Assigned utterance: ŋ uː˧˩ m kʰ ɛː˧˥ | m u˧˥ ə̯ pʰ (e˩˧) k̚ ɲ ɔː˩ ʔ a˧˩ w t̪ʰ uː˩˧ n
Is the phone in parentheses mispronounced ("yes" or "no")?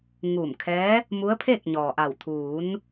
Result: yes